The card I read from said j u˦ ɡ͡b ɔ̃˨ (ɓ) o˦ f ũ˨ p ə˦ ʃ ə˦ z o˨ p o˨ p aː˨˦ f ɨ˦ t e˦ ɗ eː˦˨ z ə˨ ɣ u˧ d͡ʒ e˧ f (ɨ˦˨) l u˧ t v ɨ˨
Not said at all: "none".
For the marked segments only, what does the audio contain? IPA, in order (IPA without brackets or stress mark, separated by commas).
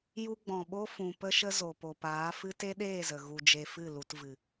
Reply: ɓ, ɨ˦˨